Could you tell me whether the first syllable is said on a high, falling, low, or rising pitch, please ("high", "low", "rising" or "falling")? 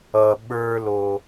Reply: low